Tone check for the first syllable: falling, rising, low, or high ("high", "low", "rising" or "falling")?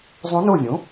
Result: rising